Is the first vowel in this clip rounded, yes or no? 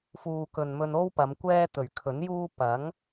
yes